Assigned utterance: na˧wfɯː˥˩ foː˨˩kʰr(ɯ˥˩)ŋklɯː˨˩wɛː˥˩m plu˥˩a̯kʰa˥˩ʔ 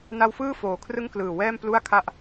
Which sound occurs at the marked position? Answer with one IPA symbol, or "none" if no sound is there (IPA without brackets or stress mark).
ɯ˥˩